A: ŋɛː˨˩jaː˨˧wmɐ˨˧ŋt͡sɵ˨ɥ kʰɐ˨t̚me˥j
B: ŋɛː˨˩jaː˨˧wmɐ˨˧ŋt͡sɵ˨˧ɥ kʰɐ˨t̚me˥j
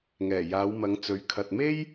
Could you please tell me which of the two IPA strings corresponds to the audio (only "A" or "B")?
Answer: B